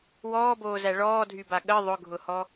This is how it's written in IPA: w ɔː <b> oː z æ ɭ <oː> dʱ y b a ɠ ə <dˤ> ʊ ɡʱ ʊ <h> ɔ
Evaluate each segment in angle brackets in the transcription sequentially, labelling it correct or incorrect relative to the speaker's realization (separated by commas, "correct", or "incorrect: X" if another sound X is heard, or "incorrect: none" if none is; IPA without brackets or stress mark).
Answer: correct, incorrect: ɔː, incorrect: ðˤ, correct